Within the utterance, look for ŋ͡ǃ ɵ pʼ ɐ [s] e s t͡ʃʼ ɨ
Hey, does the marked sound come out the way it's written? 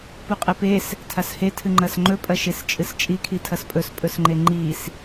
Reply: no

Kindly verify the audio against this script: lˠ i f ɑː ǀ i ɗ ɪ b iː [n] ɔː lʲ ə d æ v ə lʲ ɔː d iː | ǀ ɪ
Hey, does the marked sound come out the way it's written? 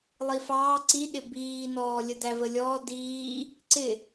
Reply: yes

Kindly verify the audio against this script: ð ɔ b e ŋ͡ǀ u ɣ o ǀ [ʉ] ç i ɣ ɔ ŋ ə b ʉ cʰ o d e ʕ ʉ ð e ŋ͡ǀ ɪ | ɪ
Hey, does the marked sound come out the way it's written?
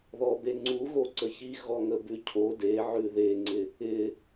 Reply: no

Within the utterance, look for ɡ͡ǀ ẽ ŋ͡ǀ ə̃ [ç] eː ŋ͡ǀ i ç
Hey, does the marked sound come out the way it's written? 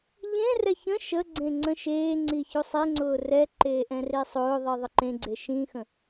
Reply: no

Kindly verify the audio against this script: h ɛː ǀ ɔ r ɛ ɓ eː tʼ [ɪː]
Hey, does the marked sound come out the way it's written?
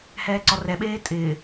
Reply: yes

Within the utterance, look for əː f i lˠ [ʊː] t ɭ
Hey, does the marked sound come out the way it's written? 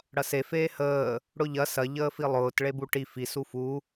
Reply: yes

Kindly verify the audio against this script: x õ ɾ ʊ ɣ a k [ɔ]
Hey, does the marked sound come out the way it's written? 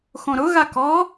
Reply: yes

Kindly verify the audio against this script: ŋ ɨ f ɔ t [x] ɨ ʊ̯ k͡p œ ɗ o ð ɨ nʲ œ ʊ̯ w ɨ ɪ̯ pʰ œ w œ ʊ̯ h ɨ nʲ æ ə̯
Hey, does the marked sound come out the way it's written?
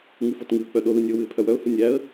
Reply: no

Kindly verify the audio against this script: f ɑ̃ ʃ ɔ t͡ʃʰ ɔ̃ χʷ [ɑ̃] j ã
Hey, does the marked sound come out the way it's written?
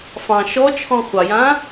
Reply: no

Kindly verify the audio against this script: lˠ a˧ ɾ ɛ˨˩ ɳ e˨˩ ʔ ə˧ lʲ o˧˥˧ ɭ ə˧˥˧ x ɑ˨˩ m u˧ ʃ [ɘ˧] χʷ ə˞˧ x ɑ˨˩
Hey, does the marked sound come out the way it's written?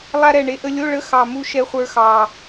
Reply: no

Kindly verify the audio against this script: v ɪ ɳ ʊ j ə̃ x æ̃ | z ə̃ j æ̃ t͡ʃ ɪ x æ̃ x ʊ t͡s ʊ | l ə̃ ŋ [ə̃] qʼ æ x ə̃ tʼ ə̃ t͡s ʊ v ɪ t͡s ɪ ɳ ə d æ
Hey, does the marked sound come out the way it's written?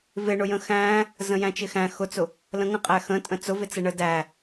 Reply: yes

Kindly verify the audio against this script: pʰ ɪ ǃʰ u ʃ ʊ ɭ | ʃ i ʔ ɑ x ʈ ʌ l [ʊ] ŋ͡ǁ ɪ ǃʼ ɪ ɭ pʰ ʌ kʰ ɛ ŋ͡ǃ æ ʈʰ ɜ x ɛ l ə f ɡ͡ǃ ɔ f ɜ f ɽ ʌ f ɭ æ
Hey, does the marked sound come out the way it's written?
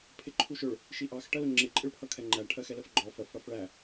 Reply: yes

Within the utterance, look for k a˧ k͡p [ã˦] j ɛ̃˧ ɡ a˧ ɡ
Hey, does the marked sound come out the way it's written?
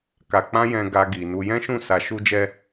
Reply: yes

